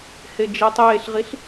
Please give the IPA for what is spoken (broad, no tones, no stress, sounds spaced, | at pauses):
h e d͡ʒ e tˤ eː ɬ ʁ i ɬ